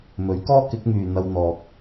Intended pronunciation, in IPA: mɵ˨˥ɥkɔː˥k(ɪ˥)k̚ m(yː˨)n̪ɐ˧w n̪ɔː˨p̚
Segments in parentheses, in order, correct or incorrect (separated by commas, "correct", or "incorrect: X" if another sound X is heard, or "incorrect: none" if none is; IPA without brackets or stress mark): incorrect: ɪ˨˥, correct